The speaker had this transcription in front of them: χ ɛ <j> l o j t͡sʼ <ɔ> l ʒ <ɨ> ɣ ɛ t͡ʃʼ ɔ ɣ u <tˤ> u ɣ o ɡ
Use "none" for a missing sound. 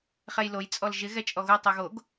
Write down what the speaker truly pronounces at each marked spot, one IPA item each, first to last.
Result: j, ɔ, ɪ, tˤ

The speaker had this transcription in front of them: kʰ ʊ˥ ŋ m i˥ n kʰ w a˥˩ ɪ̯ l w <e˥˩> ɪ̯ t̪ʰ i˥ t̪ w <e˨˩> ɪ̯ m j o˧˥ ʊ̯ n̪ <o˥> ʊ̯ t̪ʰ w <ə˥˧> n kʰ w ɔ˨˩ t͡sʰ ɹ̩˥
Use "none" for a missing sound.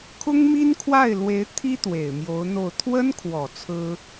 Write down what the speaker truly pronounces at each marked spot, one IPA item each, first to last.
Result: e˧˥, e˨˩, o˥˩, ə˥

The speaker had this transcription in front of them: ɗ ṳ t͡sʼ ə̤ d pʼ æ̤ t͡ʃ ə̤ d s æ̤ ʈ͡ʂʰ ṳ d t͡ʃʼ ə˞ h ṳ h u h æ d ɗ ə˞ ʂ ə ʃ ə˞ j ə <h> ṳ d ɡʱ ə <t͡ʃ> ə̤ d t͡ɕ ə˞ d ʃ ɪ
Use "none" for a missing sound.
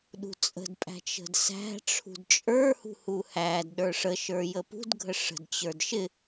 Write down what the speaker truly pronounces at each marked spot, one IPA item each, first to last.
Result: p, ʂ

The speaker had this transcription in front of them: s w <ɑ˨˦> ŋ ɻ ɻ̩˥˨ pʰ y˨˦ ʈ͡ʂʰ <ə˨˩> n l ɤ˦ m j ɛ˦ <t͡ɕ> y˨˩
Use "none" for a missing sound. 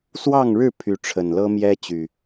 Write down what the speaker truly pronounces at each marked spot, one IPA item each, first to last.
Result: ɑ˥˨, ə˨˩, t͡ɕ

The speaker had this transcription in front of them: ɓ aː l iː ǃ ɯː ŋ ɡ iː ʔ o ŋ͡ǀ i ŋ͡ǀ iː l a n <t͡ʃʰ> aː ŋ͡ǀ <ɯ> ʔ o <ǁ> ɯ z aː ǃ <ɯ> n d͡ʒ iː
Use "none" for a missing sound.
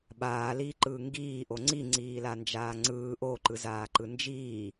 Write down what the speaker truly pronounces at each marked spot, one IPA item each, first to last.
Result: d͡ʒ, ɯː, ǃ, ɯ

